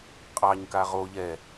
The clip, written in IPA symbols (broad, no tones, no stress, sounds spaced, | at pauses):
qʼ ɑ ɲ k a ʁ o ʎ ɛ